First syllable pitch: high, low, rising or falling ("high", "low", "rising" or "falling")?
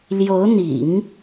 rising